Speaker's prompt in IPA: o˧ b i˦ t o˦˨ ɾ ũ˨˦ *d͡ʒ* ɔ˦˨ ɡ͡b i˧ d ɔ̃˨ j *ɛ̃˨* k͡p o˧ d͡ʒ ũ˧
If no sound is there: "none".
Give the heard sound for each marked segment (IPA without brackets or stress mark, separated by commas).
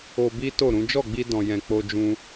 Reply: d͡ʒ, ɛ̃˨